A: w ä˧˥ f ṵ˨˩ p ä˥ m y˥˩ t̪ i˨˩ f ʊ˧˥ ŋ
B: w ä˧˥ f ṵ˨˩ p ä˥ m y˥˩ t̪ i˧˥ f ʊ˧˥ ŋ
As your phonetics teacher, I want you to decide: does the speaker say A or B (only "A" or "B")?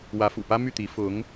B